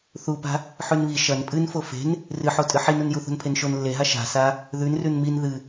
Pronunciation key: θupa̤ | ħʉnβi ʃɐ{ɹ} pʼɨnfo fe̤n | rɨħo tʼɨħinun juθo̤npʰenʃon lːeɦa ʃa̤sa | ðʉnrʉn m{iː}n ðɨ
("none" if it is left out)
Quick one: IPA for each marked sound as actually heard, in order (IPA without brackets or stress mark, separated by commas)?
n, i